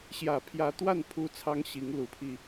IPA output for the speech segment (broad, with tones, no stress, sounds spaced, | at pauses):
ɕ j ä˨˩ pʰ j ä˧˥ t̪ w a˥˩ n pʰ u˥ t͡sʰ ɑ˥ ŋ ɕ i˧˥ ŋ l u˧˥ pʰ i˧